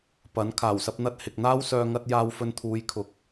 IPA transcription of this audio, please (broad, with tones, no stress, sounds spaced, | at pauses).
p ɐ˨˥ n kʰ aː˨˩ w s ɐ˧ p̚ n̪ ɐ˧ t̚ h ɪ˨ k̚ n̪ aː˥ w s œː˧ ŋ ɐ˧ t̚ j aː˧ w f ɵ˧ n t̪ʰ uː˨˧ j kʰ ʊ˨˥ k̚